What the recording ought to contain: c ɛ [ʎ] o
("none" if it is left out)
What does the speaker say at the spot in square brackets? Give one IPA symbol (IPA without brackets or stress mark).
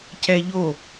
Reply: ʎ